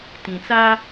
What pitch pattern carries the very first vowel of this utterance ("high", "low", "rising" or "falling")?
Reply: low